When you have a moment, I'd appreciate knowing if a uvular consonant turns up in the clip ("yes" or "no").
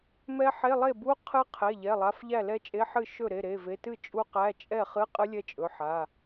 yes